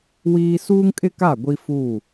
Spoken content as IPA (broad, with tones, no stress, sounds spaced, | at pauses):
w iː˦ s uː˦ ŋ kʼ ɪ˦ k a˦˨ ɡʷ i˦ f u˦˨